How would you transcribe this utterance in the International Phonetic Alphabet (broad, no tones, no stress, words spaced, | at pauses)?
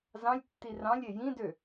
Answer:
zɑ̃lʲtːi rɑ̃lʲ ejĩdø